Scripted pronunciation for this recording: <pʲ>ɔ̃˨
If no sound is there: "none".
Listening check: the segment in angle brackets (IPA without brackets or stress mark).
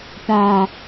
p